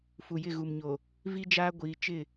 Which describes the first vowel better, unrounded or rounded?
rounded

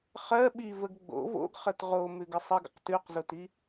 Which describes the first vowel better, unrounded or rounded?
unrounded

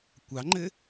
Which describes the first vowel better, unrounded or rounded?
unrounded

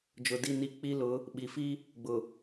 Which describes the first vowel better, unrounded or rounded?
rounded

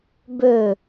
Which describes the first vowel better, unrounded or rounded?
rounded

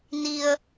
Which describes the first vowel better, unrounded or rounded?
unrounded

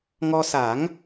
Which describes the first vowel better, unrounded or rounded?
rounded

